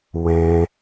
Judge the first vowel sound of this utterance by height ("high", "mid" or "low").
mid